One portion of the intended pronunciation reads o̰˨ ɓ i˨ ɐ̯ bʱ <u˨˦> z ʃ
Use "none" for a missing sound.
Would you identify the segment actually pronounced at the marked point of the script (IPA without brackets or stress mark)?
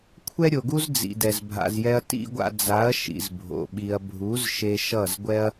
u˨˦